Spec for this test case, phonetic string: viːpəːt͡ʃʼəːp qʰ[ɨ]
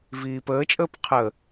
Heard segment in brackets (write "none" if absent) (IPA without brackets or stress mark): ə